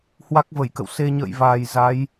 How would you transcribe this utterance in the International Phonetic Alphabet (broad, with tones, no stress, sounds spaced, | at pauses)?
h w a˦˥ k̚ v ə˧˩ j k ə̰˧˨ w s e˧ ɲ ə̰ː˧˨ j v aː˨˩ j z a˨˦ j